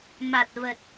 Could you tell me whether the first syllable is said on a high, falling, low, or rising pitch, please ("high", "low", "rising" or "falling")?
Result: low